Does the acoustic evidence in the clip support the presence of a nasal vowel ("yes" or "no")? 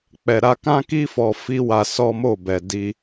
yes